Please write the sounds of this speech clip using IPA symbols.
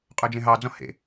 qʼœd͡ʒẽɦɑd͡zɔ̃ hḛ

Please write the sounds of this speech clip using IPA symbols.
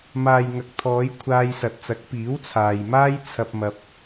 maː˨jŋɐ˨k̚t̪ʰɔː˨˧j kʷʰaː˧jsɐ˨t̚t͡sɐ˨˥k̚ piː˨˥wt͡sʰaː˨jmaː˥j t͡sʰɐ˧p̚mɐ˧p̚

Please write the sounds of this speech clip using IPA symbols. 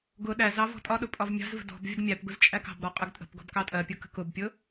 ɡʊ ɗæzɑ vɔ̤tʼɒɗʊ pʼɒvmʲɑ̤zvə̤ dɔ̤b vʲəɡmʲæpɡʊz t͡ʃʼækɑ̤bɾɔ qʼəɡtʼə̤pɡɔ̤b kɑtʼɜpʲʊ kə̤kʊbpʲʊ

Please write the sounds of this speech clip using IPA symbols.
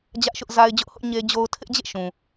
d͡ʑä˦ʔʃʊ˦ʔza˦ɪ̯ d͡ʑʊ˦ʔhʊ˦ʔ ɲe˦d͡ʑo˦ʊ̯ tʰɪ˦ʔd͡ʑḛ˦˨ʃũ˨

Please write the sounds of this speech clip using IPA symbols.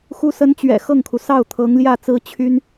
xu˧˥sə˧˥nt͡ɕɥɛ̰˨˩ xɤ˥˩ŋkʰu˩ sɑ˥˩ʊ̯t̪ʰɤ˧˥ŋljä˥˩ t͡sɹ̩˥ t͡ɕʰy˥n

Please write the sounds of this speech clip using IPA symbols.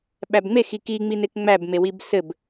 ɓæbŋ͡me xiki ŋ͡minekŋ͡mæb mewibsɘb

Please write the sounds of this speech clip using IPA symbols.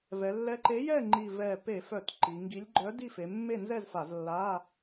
vɛ˩˧lːɛ˨˥ ǃe˨˥jɛ˥˩ ŋ͡ǃi˧˩vɛ˧˩pe˧˩˧fœ˧˩˧t ǃi˩˧ŋɡi˨˥lʲ ɡ͡ǃœ˨˥ di˥˩fe˩˧mːe˥˩nzɛ˥˩z fa˧˩˧zlːa˧˥˧

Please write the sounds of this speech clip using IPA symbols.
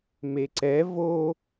meǀɛ vo

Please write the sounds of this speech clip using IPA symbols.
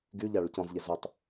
ɡy ʎaɭycɔ̃zʎe zʊtˤ

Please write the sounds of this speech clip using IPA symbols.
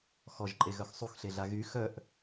xɔʒǃʼeɣœx sˤuxɬeɮa ɣy xœʔ

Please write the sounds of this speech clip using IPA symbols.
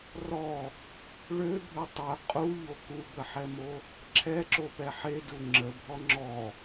rɔ | ɭøbʱø tˤø qʼuʎo kubəħɛmo | ǁʰɛǁopɛ ħedu ŋ͡ǁəbʱɔ ŋ͡ǁɔ

